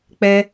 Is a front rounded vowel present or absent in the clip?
absent